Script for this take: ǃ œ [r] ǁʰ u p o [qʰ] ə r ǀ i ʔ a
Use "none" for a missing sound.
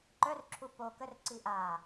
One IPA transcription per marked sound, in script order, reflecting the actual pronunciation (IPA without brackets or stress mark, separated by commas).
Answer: r, k